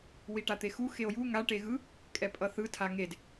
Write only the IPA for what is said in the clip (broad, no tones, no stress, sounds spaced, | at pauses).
w i ʈ a t̪ e x u x e o̯ j u ŋ a ʈ e ɣ ɯ | kʼ ɛ pʼ ʌ θ ɯ tʰ a ŋ e d